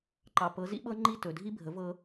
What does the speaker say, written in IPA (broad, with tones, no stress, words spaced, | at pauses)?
ǃɑ˨pɤ˨˦zḭ˦ɓɤ˦ ŋ͡ǃi˦˨tɵ˨dʱi˦bʱə˨˦ vɤ˦